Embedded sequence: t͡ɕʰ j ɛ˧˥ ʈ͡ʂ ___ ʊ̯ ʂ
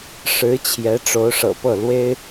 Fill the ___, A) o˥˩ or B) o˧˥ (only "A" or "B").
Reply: B